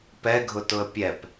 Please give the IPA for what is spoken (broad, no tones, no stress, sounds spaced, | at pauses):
p ɛ ɡʱ ʊ t ʊ ə̯ pʲ ɛ p